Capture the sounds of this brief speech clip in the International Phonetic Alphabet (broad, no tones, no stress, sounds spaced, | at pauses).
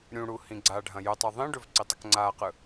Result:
ɾʲ ũ ɽ u h ĩ ɡ͡ǀ a ɖʱ ɐ̃ j ɵ tˤ ɯ ðˤ ĩ ɖ ɵ v ǀ i tˤ ə k ŋ͡ǀ aː q ɯ